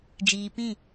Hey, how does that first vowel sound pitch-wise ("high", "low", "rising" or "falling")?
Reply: low